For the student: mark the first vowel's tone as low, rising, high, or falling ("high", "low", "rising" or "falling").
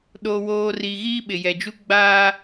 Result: low